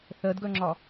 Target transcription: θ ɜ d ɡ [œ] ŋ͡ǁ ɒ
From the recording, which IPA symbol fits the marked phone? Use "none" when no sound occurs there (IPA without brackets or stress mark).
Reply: œ